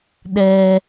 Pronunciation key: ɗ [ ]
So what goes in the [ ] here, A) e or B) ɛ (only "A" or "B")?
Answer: B